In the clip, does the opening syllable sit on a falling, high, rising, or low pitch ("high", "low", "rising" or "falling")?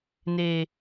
low